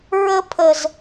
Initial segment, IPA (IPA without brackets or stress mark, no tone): ɹ